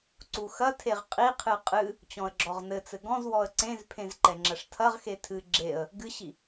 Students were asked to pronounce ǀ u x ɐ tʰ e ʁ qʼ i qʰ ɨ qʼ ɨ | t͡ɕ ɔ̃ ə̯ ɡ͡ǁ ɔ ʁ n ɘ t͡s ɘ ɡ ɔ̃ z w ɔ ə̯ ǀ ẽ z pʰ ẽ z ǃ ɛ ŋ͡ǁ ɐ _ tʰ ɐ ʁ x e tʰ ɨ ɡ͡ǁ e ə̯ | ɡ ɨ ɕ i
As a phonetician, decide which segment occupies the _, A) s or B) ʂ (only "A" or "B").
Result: B